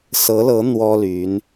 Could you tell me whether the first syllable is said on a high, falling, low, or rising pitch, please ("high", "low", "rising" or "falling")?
rising